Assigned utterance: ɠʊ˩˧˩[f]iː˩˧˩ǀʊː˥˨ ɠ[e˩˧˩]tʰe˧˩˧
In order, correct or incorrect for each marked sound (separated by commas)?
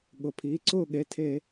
incorrect, correct